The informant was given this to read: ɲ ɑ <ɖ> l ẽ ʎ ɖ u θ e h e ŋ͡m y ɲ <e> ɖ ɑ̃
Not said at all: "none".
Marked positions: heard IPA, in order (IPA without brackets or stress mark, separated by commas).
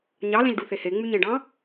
none, ẽ